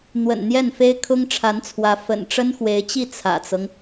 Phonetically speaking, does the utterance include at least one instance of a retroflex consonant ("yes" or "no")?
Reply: yes